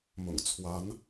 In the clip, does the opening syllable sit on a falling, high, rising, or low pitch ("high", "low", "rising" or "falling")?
low